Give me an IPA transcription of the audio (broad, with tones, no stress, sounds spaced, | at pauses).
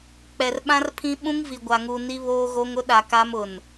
k͡p ɛ˨ r ɓ ã˦ r pʰ ĩ˦ ɓ ũ˦ ŋ v i˨ ɡʷ a˨ ŋ u˨ n i˦ β oː˦ ɣ o˦ ŋ ʊ˦ ɗ a˨ k a˦ m ʊ˨ n